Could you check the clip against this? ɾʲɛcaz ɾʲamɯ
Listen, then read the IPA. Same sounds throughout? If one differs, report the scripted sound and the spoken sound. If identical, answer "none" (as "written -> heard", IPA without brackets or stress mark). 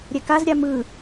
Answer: c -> k